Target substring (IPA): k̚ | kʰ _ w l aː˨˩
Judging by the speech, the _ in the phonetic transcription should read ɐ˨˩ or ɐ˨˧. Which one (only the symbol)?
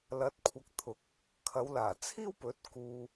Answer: ɐ˨˧